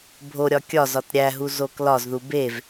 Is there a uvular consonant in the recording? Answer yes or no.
no